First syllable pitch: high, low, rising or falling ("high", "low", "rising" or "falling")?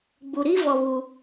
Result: low